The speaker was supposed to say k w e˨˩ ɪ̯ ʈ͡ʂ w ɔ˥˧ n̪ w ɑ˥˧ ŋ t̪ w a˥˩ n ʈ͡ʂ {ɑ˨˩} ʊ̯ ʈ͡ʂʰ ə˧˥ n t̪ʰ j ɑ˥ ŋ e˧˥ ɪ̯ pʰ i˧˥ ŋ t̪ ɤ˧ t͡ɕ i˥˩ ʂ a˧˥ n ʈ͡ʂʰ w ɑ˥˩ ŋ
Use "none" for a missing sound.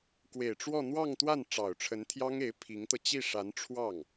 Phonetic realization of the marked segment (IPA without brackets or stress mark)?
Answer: ɑ˨˩